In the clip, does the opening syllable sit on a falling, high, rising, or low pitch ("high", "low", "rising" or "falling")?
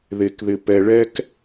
low